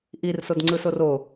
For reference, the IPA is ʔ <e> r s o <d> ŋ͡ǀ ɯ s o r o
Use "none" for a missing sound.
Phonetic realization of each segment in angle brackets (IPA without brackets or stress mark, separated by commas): i, d